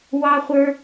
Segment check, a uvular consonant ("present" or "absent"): present